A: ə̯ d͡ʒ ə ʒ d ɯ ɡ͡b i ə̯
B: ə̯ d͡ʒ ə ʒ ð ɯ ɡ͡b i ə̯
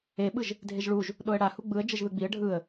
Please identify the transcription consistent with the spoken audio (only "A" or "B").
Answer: B